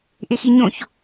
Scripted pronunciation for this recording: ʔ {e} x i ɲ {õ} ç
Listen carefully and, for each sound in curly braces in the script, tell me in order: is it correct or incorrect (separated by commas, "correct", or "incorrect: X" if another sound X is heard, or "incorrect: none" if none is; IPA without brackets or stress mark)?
correct, correct